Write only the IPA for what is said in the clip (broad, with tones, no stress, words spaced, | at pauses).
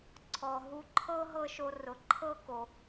ǀʰɔ˩ ɦu˧ǃʰɤ˥ ɦɤ˥ʃo˧ rʊ˩ ǃʰɤ˥ko˩